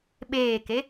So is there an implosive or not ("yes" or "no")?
yes